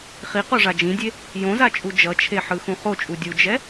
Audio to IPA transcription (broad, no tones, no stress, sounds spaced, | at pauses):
χ i q o ʐ a d͡ʒ ĩ dʲ e | j õ z a t͡ʃʼ u d͡ʒ ʌ t͡ʃʰ e ħ ɯ x ũ χ o t͡ʃʼ u dʲ u d͡ʒ ɛ